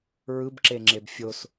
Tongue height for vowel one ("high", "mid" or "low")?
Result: high